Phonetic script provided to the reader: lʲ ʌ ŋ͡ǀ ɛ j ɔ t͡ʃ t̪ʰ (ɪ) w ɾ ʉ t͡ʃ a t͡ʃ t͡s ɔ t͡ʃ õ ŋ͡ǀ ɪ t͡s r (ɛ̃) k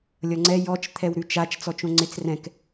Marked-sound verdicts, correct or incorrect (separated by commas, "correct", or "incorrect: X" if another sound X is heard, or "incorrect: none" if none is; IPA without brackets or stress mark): incorrect: ɛ, correct